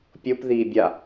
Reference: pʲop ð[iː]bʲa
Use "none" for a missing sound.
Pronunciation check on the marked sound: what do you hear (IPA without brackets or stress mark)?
iː